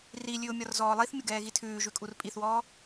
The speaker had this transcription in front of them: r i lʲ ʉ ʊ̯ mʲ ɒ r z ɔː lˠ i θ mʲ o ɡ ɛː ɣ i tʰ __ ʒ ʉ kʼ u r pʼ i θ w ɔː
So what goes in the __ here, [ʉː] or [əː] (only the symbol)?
ʉː